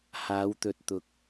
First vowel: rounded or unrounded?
unrounded